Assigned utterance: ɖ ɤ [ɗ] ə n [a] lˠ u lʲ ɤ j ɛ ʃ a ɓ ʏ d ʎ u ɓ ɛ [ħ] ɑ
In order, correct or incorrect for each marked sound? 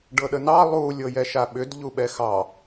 correct, incorrect, incorrect

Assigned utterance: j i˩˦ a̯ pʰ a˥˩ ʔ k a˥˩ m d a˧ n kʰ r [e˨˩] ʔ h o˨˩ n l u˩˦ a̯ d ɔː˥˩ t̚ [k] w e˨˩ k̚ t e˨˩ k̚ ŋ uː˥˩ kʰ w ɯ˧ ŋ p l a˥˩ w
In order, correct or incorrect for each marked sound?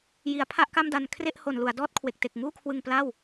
incorrect, incorrect

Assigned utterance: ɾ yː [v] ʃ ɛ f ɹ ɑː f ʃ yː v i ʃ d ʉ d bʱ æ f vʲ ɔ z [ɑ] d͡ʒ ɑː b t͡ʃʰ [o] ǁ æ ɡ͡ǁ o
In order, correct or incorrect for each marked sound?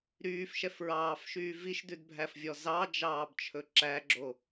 incorrect, correct, incorrect

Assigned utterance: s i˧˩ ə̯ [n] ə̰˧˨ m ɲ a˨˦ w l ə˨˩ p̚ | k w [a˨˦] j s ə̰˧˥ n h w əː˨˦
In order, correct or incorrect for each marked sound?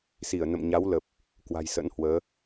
correct, incorrect

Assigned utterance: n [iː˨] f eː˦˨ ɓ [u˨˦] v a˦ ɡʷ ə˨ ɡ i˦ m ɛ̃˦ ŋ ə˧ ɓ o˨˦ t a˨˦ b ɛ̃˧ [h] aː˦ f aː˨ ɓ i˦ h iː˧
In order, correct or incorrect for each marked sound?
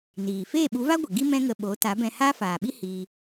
correct, correct, correct

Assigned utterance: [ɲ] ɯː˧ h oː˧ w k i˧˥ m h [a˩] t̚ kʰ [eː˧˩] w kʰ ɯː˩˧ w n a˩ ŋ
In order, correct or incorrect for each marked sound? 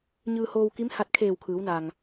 correct, incorrect, correct

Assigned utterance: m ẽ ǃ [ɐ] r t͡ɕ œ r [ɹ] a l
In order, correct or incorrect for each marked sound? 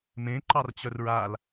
incorrect, correct

